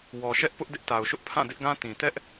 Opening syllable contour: low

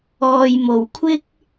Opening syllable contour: low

